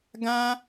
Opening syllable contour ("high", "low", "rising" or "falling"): high